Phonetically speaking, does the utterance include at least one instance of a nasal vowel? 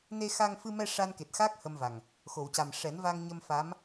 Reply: no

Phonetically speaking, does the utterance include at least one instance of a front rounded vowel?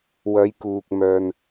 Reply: yes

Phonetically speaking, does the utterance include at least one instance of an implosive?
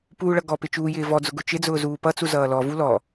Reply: no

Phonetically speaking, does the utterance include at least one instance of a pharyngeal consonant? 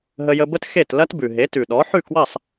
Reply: yes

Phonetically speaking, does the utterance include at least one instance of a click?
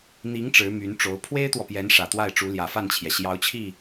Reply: no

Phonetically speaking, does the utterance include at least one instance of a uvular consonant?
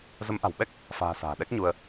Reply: no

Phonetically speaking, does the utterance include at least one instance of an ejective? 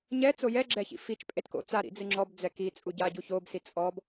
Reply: yes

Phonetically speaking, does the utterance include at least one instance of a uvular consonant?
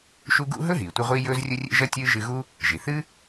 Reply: yes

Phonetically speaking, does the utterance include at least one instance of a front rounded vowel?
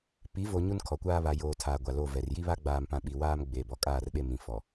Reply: no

